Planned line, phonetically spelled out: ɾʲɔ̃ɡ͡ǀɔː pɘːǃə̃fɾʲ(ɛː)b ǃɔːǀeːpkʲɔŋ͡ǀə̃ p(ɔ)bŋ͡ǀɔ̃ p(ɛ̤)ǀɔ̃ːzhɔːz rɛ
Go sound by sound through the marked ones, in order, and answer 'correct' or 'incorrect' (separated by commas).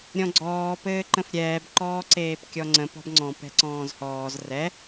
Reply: correct, incorrect, correct